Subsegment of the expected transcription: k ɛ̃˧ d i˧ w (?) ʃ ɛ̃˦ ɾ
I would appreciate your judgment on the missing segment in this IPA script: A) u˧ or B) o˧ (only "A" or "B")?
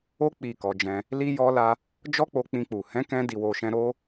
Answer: B